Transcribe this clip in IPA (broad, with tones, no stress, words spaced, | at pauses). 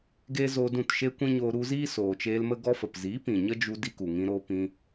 ɡeː˦zoː˧dũ˦˨t ʃe˦kʷĩ˦ɲoː˧ ɾu˧ziː˦ soː˨t͡ʃeː˧lmə˦ ɡɔ˧fə˨pziː˨˦ pĩ˨ ɲə˦d͡ʒu˧ di˦ku˨ ŋĩ˧ɾoː˧ pĩ˧